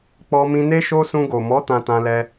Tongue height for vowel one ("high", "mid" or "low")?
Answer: mid